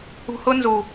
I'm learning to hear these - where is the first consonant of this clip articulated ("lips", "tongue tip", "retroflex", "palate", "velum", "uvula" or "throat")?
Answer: throat